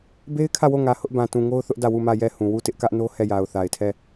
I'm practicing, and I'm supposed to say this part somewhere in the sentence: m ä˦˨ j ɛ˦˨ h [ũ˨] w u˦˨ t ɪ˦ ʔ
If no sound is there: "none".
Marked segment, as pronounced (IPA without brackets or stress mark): ũ˨